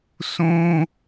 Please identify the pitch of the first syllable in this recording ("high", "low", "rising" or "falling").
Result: high